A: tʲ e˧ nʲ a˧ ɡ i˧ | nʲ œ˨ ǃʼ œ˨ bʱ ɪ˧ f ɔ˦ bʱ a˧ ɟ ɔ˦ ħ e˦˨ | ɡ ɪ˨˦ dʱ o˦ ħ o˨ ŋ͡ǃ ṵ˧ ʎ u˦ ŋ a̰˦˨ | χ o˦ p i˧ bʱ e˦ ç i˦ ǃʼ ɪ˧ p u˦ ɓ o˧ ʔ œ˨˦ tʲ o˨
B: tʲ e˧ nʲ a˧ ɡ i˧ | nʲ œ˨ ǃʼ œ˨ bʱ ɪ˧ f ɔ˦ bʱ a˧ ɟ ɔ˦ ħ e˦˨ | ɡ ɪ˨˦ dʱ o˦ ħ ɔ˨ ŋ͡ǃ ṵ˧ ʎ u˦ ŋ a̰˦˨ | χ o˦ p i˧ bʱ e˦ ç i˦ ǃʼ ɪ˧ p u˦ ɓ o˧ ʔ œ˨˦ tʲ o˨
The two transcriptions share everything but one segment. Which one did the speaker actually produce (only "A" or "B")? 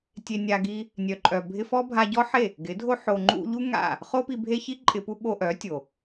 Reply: A